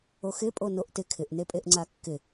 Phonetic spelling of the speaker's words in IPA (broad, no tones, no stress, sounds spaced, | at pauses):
o x ɪ pʼ o n o ʔ t ɪ kʰ ɪ ʔ n e pʼ e ʔ ŋ͡ǀ a kː ɪ